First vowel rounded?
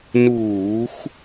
yes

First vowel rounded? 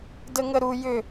no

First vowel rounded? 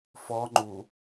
yes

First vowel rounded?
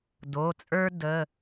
yes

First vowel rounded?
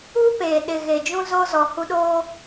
yes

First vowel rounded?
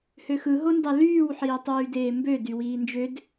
yes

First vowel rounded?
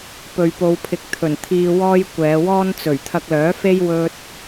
yes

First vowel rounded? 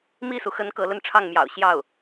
no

